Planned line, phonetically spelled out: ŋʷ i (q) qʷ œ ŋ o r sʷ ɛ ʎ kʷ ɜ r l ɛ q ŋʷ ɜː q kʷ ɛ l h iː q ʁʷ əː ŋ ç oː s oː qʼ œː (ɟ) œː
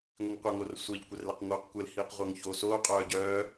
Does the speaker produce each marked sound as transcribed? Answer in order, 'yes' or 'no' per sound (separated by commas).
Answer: no, yes